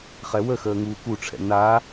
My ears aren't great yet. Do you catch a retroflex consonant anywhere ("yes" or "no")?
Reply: yes